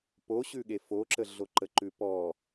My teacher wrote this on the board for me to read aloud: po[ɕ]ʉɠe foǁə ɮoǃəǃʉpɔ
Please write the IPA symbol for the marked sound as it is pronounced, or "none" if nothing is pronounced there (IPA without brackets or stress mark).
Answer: ɕ